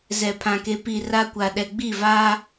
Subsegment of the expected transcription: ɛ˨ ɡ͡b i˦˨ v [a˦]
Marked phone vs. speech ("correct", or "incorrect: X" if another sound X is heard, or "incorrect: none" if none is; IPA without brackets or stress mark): correct